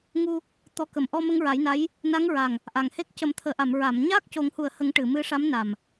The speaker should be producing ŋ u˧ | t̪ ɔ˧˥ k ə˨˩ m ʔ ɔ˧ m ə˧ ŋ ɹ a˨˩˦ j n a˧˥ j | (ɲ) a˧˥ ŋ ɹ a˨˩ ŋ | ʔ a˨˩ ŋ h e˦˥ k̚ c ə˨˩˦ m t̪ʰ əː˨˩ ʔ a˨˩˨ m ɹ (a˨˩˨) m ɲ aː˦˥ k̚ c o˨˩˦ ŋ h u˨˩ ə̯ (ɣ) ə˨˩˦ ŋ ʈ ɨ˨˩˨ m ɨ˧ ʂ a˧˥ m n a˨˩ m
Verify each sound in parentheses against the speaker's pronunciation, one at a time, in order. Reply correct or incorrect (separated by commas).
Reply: incorrect, correct, incorrect